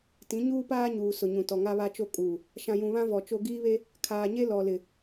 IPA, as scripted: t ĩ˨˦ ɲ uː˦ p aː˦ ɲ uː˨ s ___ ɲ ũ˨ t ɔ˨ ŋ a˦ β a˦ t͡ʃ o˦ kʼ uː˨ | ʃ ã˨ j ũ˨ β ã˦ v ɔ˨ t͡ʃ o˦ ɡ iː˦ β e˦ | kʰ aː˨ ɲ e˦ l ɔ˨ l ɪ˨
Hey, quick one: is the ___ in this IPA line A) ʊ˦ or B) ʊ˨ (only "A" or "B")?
B